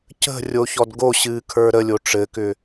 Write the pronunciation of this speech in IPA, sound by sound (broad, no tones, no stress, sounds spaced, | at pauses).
c ə̤ rʲ o ç ɔ d ɡ o ɕ ɨː kʰ ə˞ ɾ ə lʲ o ʈ͡ʂ ɘ k ʏ